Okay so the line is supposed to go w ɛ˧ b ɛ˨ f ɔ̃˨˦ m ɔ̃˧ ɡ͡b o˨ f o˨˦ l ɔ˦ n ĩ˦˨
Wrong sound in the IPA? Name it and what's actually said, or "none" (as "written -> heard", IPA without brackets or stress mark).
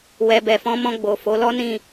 none